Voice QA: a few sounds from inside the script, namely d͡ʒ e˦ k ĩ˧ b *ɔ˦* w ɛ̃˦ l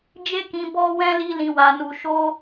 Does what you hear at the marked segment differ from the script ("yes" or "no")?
no